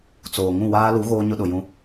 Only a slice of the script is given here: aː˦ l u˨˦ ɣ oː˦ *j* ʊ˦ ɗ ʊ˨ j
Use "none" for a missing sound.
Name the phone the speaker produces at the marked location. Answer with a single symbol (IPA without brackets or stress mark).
ɲ